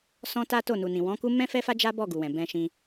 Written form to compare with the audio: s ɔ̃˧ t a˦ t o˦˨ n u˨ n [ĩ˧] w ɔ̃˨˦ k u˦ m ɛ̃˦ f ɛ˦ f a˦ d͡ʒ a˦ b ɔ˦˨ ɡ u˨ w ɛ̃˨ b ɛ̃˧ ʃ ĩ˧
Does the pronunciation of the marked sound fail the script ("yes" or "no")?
yes